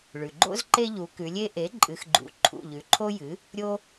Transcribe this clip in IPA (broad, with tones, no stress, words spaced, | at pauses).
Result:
ɭʉ˩ɡ͡ǃo̰˦z ǃe˦ʎu˩˧kʉ˩˧lʲe˦ ʔe˩˥ ǃʼɨ˩˧xɡ͡ǃṵ˩˧ ǃʰṵ˩˧˩ʎʉ˩˧ǃʰo˦jɨ˩˥ | ɾʲo˦